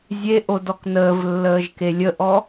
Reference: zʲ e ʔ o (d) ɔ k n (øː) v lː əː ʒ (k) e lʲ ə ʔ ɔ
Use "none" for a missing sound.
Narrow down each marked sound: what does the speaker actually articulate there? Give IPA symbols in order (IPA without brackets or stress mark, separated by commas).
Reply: d, əː, k